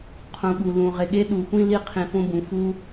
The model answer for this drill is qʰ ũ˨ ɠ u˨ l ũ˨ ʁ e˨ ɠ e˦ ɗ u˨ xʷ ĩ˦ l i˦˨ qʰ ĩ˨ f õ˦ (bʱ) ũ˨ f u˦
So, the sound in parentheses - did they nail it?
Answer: no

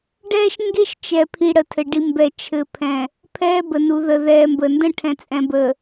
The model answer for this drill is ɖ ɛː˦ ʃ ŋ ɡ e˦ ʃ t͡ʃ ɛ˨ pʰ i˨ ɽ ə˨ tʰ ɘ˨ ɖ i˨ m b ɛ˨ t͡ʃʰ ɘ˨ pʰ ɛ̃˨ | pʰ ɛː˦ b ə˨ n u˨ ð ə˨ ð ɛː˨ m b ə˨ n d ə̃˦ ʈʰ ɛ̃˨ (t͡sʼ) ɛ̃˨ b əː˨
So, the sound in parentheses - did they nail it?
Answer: yes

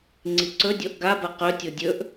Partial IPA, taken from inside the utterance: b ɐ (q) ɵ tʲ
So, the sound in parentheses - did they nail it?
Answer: yes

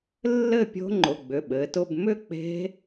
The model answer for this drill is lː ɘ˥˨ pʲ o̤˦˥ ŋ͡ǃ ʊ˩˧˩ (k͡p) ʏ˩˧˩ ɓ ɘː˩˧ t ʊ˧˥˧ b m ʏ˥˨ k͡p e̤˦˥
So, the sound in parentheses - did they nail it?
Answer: no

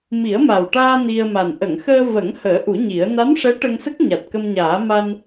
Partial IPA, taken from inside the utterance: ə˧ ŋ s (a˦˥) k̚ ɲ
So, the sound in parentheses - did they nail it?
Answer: no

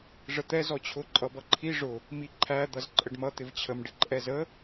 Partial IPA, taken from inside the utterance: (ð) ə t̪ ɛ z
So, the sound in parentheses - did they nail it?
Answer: no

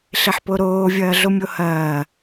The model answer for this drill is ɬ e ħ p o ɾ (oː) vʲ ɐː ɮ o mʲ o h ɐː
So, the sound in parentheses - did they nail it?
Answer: yes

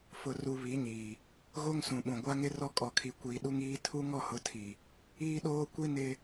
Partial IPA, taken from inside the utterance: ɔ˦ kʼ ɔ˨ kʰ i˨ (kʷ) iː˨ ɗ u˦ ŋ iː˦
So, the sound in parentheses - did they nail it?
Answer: yes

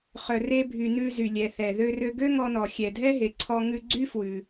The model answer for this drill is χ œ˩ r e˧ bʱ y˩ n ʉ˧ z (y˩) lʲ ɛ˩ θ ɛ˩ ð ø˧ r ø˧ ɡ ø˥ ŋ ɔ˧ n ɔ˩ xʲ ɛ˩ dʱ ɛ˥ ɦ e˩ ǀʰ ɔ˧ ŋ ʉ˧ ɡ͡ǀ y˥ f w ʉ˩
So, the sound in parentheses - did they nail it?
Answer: yes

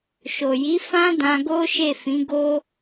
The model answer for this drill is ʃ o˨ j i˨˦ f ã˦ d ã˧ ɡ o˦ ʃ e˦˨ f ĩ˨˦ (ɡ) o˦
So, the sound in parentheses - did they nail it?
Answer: yes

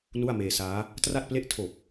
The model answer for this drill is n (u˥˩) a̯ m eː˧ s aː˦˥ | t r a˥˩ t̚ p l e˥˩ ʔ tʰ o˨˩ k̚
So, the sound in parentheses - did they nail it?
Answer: yes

